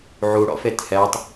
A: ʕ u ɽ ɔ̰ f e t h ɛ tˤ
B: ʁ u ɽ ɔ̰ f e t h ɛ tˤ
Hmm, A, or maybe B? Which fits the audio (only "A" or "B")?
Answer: A